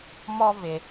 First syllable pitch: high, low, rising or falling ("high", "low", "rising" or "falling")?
high